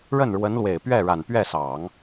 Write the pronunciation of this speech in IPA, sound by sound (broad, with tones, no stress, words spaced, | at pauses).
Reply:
ɻə˥˩nɻwə˧˥nlwe˨˩ɪ̯pɥɛ˥˩ ɻa˨˩n pɥɛ˥˩sɑ˨˩˦ŋ